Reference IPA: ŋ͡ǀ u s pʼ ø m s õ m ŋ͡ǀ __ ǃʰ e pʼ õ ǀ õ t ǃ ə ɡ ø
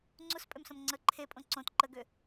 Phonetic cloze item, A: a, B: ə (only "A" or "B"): B